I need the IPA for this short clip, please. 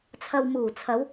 t͡sʰɐ˨wmuː˨˩t͡sʰɐ˨˧w

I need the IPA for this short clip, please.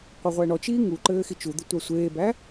qʷəʁʷæɳɔt͡ʃiː ŋu ǃɘːxit͡ʃud̪ɪ tʷasʷeːbæ

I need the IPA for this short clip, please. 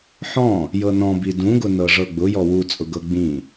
ħɔ̃ | jɤnɔ̃bi dũɡʊ nɤʐɤɡ͡bʊ jɔwu t͡sʼʊɡɤɡ͡bĩ

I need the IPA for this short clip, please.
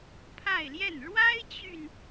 pʰa˥˧ɪ̯ljɛ˥˩n ɻwa˥ɪ̯t͡ɕy˨n

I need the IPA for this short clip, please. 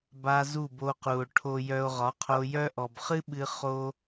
ba˧ zu˦˨bo˧qu˨o̯ ʈʰo˧jœ˧o̯ ʁɒ˨˦qʰo˧jœ˦ ʔɔ˨bχɨ˦ɓɨ˧ χo˦

